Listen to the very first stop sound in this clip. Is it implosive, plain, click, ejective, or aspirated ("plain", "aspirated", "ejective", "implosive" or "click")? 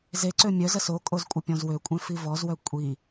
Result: click